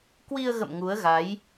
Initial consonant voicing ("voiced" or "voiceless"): voiceless